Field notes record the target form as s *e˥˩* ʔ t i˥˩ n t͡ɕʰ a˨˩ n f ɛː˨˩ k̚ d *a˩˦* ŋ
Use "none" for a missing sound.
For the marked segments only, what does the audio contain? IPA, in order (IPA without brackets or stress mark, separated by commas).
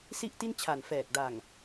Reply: i˥˩, a˨˩